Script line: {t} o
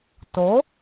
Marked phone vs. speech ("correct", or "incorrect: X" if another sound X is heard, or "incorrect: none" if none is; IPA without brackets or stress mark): correct